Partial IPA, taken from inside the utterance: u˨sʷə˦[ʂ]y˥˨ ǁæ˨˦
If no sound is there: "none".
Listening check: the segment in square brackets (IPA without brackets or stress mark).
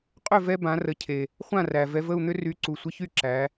ç